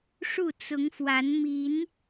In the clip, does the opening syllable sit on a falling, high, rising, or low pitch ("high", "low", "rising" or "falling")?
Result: falling